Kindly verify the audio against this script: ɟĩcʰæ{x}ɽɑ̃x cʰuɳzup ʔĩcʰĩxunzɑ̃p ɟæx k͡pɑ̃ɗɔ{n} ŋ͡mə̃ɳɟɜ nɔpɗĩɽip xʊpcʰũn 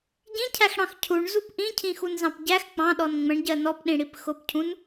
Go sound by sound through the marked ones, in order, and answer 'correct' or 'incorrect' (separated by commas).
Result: correct, correct